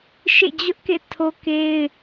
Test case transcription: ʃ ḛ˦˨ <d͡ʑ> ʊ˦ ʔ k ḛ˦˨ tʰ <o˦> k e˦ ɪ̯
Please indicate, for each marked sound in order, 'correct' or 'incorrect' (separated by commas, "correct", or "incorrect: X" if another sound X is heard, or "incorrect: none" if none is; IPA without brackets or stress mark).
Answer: correct, correct